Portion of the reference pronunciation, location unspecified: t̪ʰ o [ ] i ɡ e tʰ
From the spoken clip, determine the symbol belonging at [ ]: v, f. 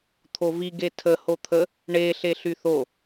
v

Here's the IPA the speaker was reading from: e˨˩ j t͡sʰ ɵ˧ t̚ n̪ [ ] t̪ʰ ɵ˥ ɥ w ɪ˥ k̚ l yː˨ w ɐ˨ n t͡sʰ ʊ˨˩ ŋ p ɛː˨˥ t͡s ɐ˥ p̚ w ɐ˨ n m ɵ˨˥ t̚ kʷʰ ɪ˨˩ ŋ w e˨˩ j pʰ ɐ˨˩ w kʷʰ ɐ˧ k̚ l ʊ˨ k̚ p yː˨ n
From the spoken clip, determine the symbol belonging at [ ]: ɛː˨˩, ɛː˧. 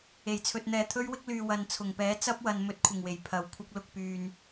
ɛː˧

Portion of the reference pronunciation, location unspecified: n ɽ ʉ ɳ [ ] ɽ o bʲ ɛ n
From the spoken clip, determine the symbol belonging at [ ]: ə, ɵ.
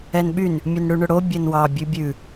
ɵ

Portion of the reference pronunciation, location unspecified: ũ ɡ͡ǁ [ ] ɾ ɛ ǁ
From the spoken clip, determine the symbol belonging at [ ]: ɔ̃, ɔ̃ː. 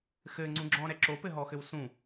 ɔ̃ː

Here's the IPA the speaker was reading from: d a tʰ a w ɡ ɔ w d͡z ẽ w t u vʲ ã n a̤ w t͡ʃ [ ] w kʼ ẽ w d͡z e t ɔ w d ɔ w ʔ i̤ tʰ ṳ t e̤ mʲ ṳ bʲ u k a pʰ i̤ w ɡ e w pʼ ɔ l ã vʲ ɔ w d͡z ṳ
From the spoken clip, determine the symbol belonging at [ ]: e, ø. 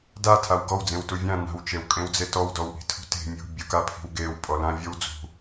e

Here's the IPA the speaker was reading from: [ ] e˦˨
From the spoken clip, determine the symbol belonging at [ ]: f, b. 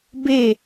b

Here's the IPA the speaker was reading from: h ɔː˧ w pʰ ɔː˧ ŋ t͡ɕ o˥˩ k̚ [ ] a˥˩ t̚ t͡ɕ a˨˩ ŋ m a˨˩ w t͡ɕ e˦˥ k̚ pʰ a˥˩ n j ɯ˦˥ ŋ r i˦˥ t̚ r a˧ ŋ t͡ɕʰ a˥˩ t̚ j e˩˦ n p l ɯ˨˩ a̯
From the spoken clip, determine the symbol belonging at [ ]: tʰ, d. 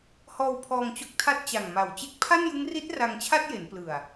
tʰ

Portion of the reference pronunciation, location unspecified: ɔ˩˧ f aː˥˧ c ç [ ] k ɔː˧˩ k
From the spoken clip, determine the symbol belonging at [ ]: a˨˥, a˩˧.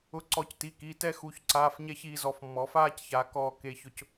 a˩˧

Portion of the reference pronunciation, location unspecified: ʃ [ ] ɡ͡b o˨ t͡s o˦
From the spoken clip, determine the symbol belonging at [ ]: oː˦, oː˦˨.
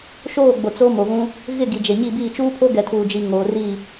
oː˦˨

